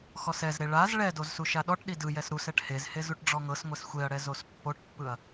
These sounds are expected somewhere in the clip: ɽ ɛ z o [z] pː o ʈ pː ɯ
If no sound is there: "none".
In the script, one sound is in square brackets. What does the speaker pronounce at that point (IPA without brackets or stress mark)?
s